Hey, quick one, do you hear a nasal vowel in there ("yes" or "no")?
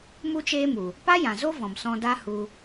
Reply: yes